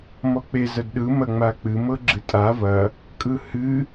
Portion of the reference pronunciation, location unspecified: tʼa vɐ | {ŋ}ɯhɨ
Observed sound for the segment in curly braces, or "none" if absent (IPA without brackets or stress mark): kʼ